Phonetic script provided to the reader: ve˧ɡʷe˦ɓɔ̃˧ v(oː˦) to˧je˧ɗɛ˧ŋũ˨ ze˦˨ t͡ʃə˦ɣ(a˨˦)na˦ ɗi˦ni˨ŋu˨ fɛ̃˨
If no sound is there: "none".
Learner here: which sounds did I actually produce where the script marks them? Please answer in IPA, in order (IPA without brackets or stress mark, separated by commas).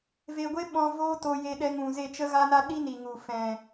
oː˦, a˦